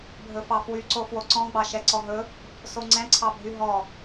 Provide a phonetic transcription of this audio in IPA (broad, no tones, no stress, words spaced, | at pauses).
bʱɵfɑfwyǀo fwoǀɔ̃ɡ͡bɑ ʃɛǀɔɦɵ | soŋ͡ǀɛ̃ǀʰɑbʱy ɦɔ